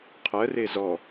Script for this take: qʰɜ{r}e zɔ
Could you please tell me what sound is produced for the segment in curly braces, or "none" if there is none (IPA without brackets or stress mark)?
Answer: r